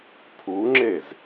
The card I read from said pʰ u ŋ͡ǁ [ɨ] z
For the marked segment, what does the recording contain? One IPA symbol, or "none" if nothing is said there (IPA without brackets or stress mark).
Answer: e